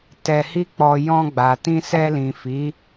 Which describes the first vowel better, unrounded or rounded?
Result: unrounded